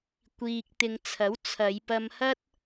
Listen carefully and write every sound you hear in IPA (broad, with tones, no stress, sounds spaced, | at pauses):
kʷ iː˨ k̚ t̪ ɪ˨ ŋ t͡sʰ ɐ˨˥ w t͡sʰ ɐ˨˧ j p ɐ˧ m h ɐ˥ t̚